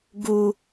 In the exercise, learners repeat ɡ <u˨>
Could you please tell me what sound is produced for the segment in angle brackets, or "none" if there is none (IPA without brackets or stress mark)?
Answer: u˨